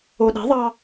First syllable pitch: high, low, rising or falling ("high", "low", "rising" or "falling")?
low